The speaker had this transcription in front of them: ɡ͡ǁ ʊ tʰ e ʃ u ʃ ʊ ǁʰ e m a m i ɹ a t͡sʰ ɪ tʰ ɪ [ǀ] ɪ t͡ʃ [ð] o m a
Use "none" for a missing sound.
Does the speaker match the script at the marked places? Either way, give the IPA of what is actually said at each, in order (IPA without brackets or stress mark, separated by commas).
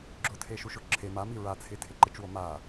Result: ǃ, w